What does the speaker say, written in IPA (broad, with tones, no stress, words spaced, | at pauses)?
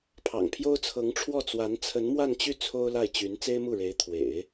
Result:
pʰɑ̰˨˩ŋpʰjo˥ʊ̯t͡sʰɤ˧˥ŋʈ͡ʂʰwɔ˥˩ t͡swa˧˥nt͡sʰə˧˥nmwa˥˧nt͡ɕy˥˩ t͡sʰo˥ʊ̯la˥˩ɪ̯t͡ɕy˧˥n t͡se˥ɪ̯mu˥˩ɻe˧˥ɪ̯ t̪ʰwḛ˨˩˦ɪ̯